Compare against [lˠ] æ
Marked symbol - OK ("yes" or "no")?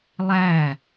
yes